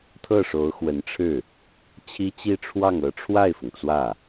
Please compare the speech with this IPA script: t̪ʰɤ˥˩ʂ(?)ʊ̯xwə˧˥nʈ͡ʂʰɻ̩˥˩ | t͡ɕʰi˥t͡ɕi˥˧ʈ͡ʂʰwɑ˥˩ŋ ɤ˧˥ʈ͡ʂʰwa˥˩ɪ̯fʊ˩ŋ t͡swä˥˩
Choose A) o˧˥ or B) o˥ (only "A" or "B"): A